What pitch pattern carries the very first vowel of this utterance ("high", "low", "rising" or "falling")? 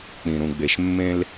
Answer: low